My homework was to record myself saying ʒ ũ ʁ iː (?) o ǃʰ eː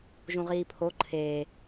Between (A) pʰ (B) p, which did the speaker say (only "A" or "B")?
A